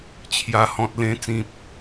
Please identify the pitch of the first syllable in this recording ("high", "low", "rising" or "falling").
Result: low